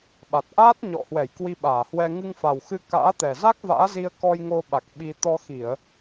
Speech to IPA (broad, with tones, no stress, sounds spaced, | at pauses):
ɓ a˨˩ t̚ ʔ aː˦˥ t̚ ɲ ɔ̰˧˨ h w ɛ˧˩ j k w i˧ ɓ aː˧˩ h w ɛ˧ ŋ ɨ˧ ŋ f a˨˩ w x ɨ˧ k a̰ː˧˥ t̪ ɛ˨˩ z a˦˥ k̚ v a̰ː˧˥ z i˧ ə̯ k ɔ˧ j ŋ o˧ ɓ a˨˩ k̚ ɓ i˧ t̪ ɔ˧ x i˧˩˨ ə̯